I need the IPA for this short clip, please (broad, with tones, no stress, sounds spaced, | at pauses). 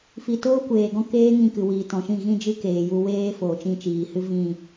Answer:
f i˧ t oː˦ kʷ eː˨ ɡ ɔ̃˦ k eː˦ ŋ ĩ˧ k ɨ˨ w iː˨ t ɔ̃˨ ʃ ĩ˦˨ ɣ ĩ˦ d͡ʒ ɨ˦ k eː˨ j u˧ w eː˦ f oː˨ t͡ʃ ĩ˧ t͡ʃ iː˨ h ɨ˦ v ĩ˦˨